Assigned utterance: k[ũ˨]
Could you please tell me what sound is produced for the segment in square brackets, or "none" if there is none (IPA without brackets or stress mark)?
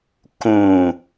ũ˨